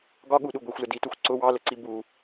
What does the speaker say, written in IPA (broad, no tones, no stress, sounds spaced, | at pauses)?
ɡ ɒ ɠ u ɗ u ɡʷ i xʷ l ə d i t u xʷ ǀ ʊ w ɑ l ə ǀ i b u